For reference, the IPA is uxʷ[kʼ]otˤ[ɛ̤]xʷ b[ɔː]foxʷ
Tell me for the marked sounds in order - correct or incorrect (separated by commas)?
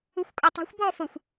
correct, correct, correct